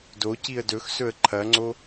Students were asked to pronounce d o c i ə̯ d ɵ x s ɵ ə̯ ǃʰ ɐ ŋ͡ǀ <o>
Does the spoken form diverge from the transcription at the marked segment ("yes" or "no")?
no